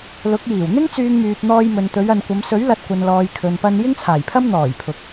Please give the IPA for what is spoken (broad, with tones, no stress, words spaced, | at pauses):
lʊ˨˥k̚jiː˨˩w n̪ɪ˥ŋ t͡syː˧ŋmyː˨p̚ n̪ɔː˧jmɵ˨nt̪ɵ˨˧ɥ ɐ˨nkʷɐ˨˧m sɵ˨˥ɥ lɐ˧t̚kʷɐ˨nlɔː˨j kʰɵ˨npɐ˧n jɪ˥ŋt͡sʰaː˨˩jpʰɐ˥m n̪ɔː˨˩jpʰʊ˨k̚